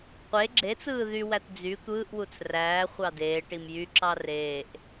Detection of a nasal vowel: absent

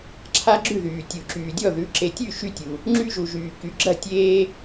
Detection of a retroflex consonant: absent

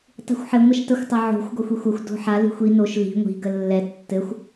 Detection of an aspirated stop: absent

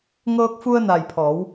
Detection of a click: absent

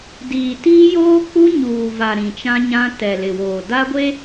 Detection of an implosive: absent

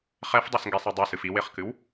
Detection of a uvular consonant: present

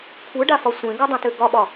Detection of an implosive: present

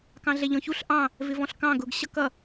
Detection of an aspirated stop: absent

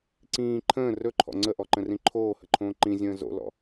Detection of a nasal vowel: present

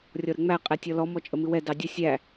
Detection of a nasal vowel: absent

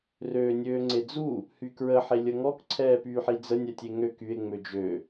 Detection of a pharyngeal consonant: present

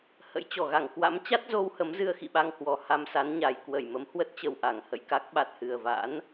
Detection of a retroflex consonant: absent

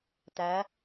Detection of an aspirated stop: absent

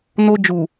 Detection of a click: absent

